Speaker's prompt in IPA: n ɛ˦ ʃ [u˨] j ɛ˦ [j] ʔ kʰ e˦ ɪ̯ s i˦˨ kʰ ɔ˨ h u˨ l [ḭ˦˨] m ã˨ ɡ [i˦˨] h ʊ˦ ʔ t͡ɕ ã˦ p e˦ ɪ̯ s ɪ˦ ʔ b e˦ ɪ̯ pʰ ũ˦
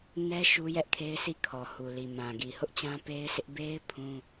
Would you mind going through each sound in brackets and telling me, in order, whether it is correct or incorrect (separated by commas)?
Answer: incorrect, incorrect, incorrect, incorrect